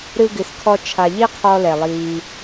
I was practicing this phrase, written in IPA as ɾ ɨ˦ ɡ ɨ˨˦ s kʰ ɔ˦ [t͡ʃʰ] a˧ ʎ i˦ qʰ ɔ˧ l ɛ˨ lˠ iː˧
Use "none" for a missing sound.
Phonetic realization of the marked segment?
t͡ʃʰ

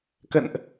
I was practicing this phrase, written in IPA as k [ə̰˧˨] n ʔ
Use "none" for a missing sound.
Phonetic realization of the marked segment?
ə̰˧˨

